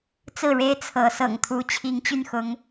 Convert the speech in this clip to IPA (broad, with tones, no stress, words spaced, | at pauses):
t͡sɹ̩˥˨ɻe˦ɪ̯ t͡sʰɤ˨˦sɤ̰˨˩ŋt̪ʰu˨˦ t͡ɕʰi˨˦ŋt͡ɕy˥˨nxʊ˨˦ŋ